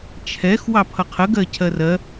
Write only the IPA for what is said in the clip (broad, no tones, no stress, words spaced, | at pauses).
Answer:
t͡ʃʰɛx wɑpʰʌqʰə ɡɜcʰɜrɜ